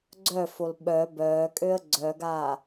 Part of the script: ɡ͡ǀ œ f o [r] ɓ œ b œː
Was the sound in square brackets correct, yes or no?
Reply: no